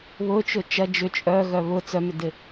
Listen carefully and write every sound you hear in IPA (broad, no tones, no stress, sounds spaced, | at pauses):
β ʊ t͡ʃ ʊ t͡ʃ ɐ d͡ʒ ʏ t͡ʃʼ œ ɣ œ β ʊ t͡s œ m ʏ d ɪ